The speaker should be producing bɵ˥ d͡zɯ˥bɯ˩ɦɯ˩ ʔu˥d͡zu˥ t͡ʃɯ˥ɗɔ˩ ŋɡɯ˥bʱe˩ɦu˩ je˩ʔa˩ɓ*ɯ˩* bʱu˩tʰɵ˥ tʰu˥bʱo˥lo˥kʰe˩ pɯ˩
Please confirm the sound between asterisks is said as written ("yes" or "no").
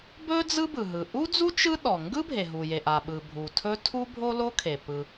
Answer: yes